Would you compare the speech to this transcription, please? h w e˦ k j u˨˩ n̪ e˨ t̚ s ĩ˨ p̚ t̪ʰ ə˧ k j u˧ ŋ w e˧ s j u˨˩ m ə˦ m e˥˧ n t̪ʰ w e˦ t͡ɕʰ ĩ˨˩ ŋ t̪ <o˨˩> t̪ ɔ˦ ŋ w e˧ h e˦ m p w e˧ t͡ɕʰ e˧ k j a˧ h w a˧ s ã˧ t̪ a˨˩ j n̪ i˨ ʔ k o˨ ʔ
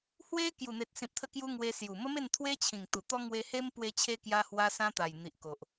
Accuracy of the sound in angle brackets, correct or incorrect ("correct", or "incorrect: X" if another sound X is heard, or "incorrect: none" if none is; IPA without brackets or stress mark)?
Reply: incorrect: u˨˩